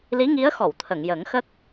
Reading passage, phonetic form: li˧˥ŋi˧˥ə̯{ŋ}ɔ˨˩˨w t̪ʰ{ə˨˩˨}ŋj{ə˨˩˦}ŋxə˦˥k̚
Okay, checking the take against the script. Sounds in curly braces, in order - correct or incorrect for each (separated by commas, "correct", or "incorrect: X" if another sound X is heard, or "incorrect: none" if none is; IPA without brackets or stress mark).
incorrect: x, correct, correct